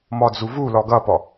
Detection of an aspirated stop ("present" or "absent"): absent